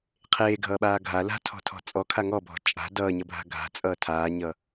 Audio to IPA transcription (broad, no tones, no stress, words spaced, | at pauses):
qʰeːɡʱʌːɓaː ɡʱa la̤tʰɔ̤tʰɔ̤ t͡sʼɔkʰa ŋɔbʱɔ̤ t͡ʃʼa̤ dʌːɲʌbʱa̤ ɡʱa̤t͡sʼʌː tʰaːɲʌ